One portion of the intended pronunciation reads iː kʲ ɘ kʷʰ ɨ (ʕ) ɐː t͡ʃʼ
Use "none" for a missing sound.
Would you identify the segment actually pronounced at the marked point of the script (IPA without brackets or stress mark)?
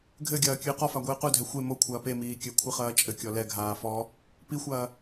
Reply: χ